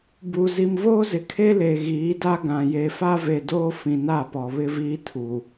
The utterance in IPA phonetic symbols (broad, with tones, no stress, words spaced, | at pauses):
bu˨ zi˨mvoː˦zɪ˨ kʰe˦le˨ ɣiː˨˦da˦ɡã˨ je˨fa˦ve˨ doː˦fĩ˨na˦˨pɔ˨ βɪ˦viː˦ tʰu˨